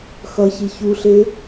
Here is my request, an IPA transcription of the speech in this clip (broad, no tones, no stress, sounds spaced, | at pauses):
x ʌ ç i ç u ɬ e